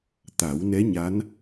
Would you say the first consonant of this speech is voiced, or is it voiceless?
voiceless